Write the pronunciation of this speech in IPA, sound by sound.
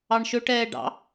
ɑ ɳ ʃ ɵ ʈ ɛː ɖ ɑ̰

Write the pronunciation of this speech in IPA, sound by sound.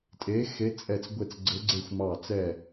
tʼ e˨˦ x e˨˦ t͡sʼ ɛ˧˩ t͡s ɡʷ e˧˩ t͡s ɡ͡ǀ ɘ˨˦ ɡ͡ǀ e˧˩ xʷ m ɑ˧˩ t͡s ɛ˧˩

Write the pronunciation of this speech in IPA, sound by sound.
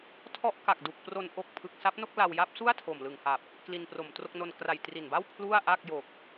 tʰ ɔ˦˥ ʔ k a˨˩ k̚ d u˨˩ k̚ p r o˧ n ʔ o˦˥ k̚ pʰ ɯ˨˩ k̚ s a˦˥ p̚ n o˥˩ k̚ l a˧ w j a˦˥ p̚ s u˥˩ a̯ tʰ o˨˩ m l ɯ˨˩ ŋ h a˨˩ p̚ | k l i˧ n p r o˨˩ m t r o˥˩ k̚ n o˧ n k r a˨˩ j t r i˨˩ n b a˥˩ w pʰ l u˥˩ a̯ ʔ a˥˩ k̚ j o˨˩ k̚

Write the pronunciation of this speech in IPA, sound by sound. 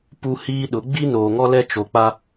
p u˦ h iː˦ ɗ ʊ˨˦ ɡ͡b i˦ n oː˨ ŋ ɔ˦ l ɛ˦ t͡ʃ o˨ k͡p a˦

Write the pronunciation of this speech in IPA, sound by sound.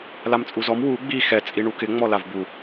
l a m t͡sʼ u z ɔ m w u ɡ͡b i x ɛ t͡sʼ i ɳ u k ɪ ŋ͡m ɔ l a v b u

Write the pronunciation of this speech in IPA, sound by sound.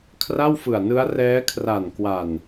kʰ r a˥˩ w f ɯ˨˩ a̯ n ɯ˦˥ a̯ r ɛː˦˥ kʰ r a˨˩ n k w a˨˩ n

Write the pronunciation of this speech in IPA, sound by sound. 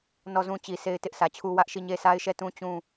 n ɔ˦˨ z ũ˦ t͡ɕ i˨ s e˦ ɪ̯ t ɪ˦ ʔ s ä˨ t͡ɕʰ u˦ w ä˦ ʔ ʃ i˦˨ ɲ e˦ s a˦ ɪ̯ ʃ ɛ˦˨ t ũ˦ t͡ɕ ũ˦˨

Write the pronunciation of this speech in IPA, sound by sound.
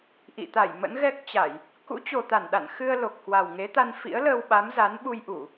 ʔ ḭ˧˨ t̪ a˧˩ j m ə̰˧˥ n ɣ ɛ˦˥ k̚ t͡ɕ a˧˩˨ j | k ṵ˧˥ t͡ɕ o˨˩ t̪ a˧˩ n ɗ a̰˧˨ n x ɨ˧ ə̯ l o˨˩ k̚ h w a˨˩ w ŋ e˨˦ t̪ a˧ n f ḭ˧˥ ə̯ l əː˧ w ɓ a˨˦ m z a˨˦ n ɓ u˧ j ʔ u˧˩˨

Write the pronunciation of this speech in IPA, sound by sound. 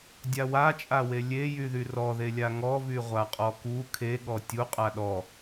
dʲ a w a t͡ʃʼ a w e lʲ e j y ð y r ɔ ð e lʲ a ŋ ɔ v y ʁʷ a qʼ ɔ k u kʰ e ɠ ɔ tʲ u qʼ a ɗ ɔ

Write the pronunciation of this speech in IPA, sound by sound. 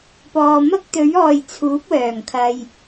p ɔː˨ m ɐ˥ k̚ t̪ ɵ˨˥ ɥ ɔː˨ j t͡sʰ uː˨˥ p̚ w œː˨˩ ŋ kʰ ɐ˨ j

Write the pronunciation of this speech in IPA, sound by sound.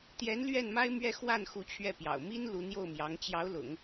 t̪ j ɛ˧˥ n l ɥ ɛ˥˩ n m a˥ ɪ̯ m ɥ ɛ˥˧ x w a˥˩ n x u˧˥ t͡ɕʰ ɥ ɛ˥˩ p j ɑ̰˨˩ ʊ̯ m i˥ n l u˧˥ n̪ j o˥˩ ʊ̯ m j ɑ˧˥ ŋ t͡ɕ j ɑ˧˥ ʊ̯ l ʊ̰˨˩˦ ŋ

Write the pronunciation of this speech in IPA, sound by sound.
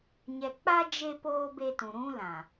ɲ ɛ˨ k͡p a˦ d͡ʒ e˦ p oː˦ b e˦ t ũ˨ ɾ ũ˦ l ã˨

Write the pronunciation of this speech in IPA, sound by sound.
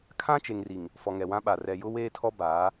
kʰ ã˦ t͡ʃ e˨ ŋ r i˨ ŋ | f ɔ˨ ŋ ɛ˨ w ã˦ ɓ a˨ r ɛ˨ j ʊ˦ w eː˦ tʰ ɔ˦ b aː˨˦

